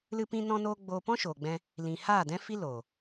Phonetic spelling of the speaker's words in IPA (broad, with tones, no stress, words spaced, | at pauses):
lɨ˧pĩ˧nɔ̃˧noː˧ ɡ͡boː˧pɔ̃˦ʃoː˨ɡ͡bɛ̃˧ | lĩ˨haː˦˨dɛ̃˦fi˦ loː˨